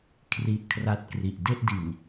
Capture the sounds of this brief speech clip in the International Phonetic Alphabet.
kʰ r i˦˥ ʔ kʰ r a˦˥ t̚ k r i˨˩ ʔ d e˥˩ ʔ d i˨˩ n

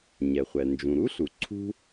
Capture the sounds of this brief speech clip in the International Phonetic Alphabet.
ɲ ɛ˩ χʷ ɛ˩ n d͡ʒ ũ˩ ɾ u˥ ɬ u˩ ǀʰ ṳ˥

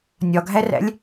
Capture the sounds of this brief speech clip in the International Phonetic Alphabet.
nʲ ɒ ɡʱ æ r æ̰ lʲ

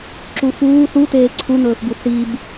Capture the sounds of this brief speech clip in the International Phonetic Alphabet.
ǁ u f uː θ u t eː ǀʰ u n̪ ɵː f b u θ i b

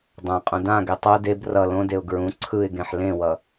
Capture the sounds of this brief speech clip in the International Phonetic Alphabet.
dˤ ã qʼ ũ d ã ɡ e tˤ o d e b r ʌ l õ d e ʊ̯ ɡ ɹ ũ ǀʰ ɯ ɪ̯ ɡ ẽ ħ l ẽ w ʌ

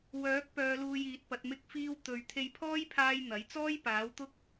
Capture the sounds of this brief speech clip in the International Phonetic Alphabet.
w œː˨˥ k̚ p œː˨˧ l uː˧ j iː˨˥ t̚ p ɐ˨˥ t̚ m ɪ˧ k̚ f iː˧ w t̪ ɵ˨ ɥ t̪ʰ e˧ j pʰ ɔː˥ j pʰ aː˧ j n̪ ɐ˨˥ j t͡s ɔː˥ j p aː˨˥ w t̪ ʊ˥ k̚

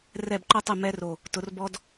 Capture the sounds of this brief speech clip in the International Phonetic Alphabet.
r ɛ˧˩ b ǃ o˦ tˤ y˧˩ m ɛ˦ r o˧˩ | t ʊ˩˧ r b ɔ˦ d

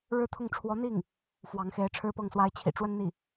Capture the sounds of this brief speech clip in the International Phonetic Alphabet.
ɻ ɻ̩˥ t̪ʰ ʊ˥˩ ŋ ʈ͡ʂʰ w ɔ˧˥ n̪ i˥˩ ŋ | f w ɑ˧˥ ŋ x e˧˥ ɪ̯ ʈ͡ʂʰ ɻ̩˥˧ p ɤ˥˩ ŋ s w a˥ ɪ̯ t͡ɕʰ ḭ˨˩ ʈ͡ʂ w ə˥ n n̪ i˥˩

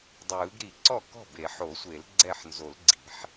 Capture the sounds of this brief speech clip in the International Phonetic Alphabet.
dˤ ɯː˨˩˦ ɡ ɾ i˨˩˦ ǀ ɔ˥˩ k ɔ̤˥˩ b e˨˩˦ ħ o˨˩˦ sʷ e˨˩˦ l ɡ͡ǀ ɛ˥˩ ħ n z o˨˩˦ l ɡ͡ǀ i̤˨˩˦ ħ

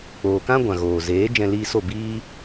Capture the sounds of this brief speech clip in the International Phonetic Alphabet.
k͡p oː˨ k ã˦ ɡʷ ã˨ ɣ oː˨ z eː˨˦ d͡ʒ ɛ̃˧ l iː˧ s o˦˨ b iː˦

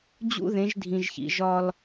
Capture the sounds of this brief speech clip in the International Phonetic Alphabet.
d͡ʑ ṵ˦ ð ẽ˨˦ ʒ dʱ ĩ˨ ʒ ç ḭ˨ ʒ ɒ˦ l

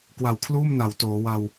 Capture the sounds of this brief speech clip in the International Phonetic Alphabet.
k w a˨˩ w kʰ l uː˥˩ m n a˩˦ w t oː˩˦ w a˧ w

